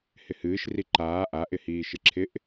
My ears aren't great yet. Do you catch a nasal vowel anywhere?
no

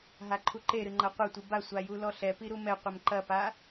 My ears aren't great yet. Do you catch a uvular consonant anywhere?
yes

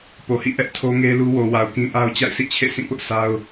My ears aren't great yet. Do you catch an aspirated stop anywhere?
yes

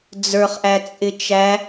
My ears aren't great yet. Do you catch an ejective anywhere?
yes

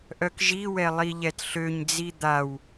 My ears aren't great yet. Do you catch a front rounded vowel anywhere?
yes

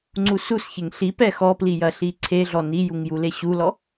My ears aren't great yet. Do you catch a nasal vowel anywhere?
no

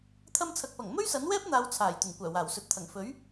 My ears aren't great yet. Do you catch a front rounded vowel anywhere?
yes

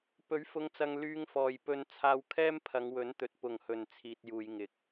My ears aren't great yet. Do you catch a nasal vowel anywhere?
no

